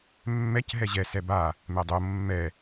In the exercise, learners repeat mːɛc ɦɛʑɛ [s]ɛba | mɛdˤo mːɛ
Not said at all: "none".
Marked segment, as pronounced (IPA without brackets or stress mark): s